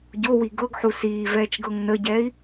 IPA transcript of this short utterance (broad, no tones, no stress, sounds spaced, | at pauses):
ɟ o w i ɡ ɤ ɡ ħ u s iː v ɛː t͡ʃ ɡ ɤ ŋ n ə ɟ ɛː i̯